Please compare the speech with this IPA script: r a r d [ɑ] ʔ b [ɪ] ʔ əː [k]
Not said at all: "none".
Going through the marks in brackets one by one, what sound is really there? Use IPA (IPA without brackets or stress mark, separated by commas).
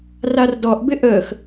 ɔ, ɪ, x